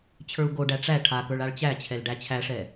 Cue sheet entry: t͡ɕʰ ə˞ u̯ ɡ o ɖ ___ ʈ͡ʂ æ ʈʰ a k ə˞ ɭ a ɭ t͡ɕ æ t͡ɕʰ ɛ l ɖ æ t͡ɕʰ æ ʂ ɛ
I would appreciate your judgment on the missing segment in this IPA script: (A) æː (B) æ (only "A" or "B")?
B